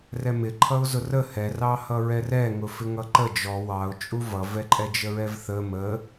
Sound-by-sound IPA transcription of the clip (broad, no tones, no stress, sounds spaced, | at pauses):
r ɛ m ɪ ǃʰ ʌ ʊ̯ z ʊ r ə h ɛ r ɑ h ʌ ɹ ɛ r ɛ ŋ ʊ f ɪ ŋ ʌ ǃ ə d͡ʒ ɔ w ɑ ʊ̯ t͡ʃʼ u v ʌ v ɛ ǃʼ ɛ d͡ʒ ə ɹ ɛ v θ ə m ə